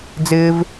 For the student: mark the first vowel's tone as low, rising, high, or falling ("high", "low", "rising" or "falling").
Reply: high